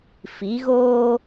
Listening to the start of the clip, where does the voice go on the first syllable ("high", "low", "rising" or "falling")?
rising